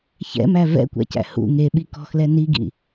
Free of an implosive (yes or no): no